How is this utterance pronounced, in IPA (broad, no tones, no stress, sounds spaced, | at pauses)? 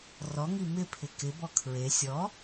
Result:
r ɔ ŋ i m ɪ pʰ ɪ k ɪ b ɔ kʰ ɹ e sʲ ɔ